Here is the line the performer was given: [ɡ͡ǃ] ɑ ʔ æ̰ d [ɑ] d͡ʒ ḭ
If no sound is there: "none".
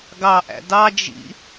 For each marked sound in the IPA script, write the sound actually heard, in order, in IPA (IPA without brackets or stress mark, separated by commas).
ɡ, ɑ